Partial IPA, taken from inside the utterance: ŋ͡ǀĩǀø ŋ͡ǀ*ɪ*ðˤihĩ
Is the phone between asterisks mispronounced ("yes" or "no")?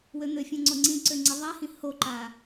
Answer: no